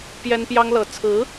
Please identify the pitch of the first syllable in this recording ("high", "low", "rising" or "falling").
high